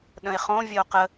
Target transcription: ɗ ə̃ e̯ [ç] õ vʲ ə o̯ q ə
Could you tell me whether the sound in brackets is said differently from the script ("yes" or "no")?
yes